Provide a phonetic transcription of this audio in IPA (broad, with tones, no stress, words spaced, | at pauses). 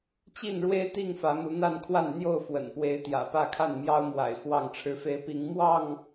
t͡ɕi˥˨nɻwe˦ɪ̯t̪i˥˨ŋ fä˨˦mu˨˦n̪a˥˨nkʰwa˥˨n n̪jo˥˨ʊ̯fwə̰˨˩npwe˨˦ɪ̯ t̪jä̰˨˩pä˥˨kʰa˥˨n mjɑ˦ʊ̯mwa̰˨˩ɪ̯ xwɑ˥˨ŋʈ͡ʂʰɻ̩˦fe˦ɪ̯ pi˨˦ŋmwɑ˥˨ŋ